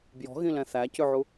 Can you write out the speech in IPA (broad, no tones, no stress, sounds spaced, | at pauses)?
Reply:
b j ɔ̤ ɣ ĩ l ɛ̃ θ æ c ʉ ʕ u